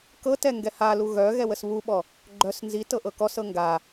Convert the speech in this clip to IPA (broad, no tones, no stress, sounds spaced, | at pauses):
k ɤ t ɛ ŋ ɡ ɛ h a l u ɣ œ ɣ ɛ w ə s β u ɓ ɔ | ɡ͡ǃ œ s n z i t ɤ ʔ ɤ k ɔ s ɤ ŋ ɡ a